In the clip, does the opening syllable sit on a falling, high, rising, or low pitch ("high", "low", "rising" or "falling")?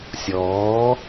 rising